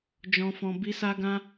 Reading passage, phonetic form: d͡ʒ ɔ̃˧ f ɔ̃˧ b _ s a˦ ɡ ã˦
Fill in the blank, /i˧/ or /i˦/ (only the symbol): i˧